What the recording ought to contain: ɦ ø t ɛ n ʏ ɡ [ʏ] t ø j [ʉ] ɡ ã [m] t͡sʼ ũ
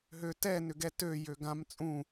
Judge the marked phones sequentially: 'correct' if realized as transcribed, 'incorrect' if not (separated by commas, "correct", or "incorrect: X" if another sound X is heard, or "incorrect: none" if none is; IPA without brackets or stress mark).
incorrect: ɛ, incorrect: ø, correct